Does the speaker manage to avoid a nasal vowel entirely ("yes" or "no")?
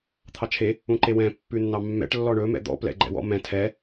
no